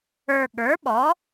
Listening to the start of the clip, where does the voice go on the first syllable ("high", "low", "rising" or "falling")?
low